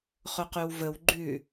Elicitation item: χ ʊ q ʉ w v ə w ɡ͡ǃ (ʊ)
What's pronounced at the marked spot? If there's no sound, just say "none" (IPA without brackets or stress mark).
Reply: ʉ